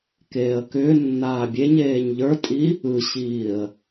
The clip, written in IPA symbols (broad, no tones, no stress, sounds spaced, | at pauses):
k eː ə̯ k ʏː nː aː bʲ e ɲ eː ɲ ʎ ə˞ tʼ i | ɯ ɕ iː ə̯